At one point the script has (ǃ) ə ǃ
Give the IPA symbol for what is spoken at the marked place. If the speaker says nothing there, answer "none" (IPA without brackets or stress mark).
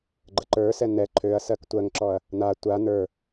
ɡ͡ǃ